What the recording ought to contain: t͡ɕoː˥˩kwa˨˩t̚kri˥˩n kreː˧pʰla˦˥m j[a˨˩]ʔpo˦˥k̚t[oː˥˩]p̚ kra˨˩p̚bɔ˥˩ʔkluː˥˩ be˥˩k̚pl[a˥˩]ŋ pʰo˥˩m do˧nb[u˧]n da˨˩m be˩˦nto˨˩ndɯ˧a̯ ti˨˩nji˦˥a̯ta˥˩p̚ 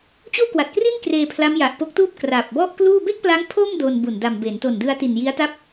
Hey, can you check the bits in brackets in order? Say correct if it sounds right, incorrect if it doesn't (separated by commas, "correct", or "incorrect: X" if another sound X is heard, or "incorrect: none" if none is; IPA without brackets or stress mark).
correct, incorrect: uː˥˩, incorrect: a˦˥, incorrect: u˨˩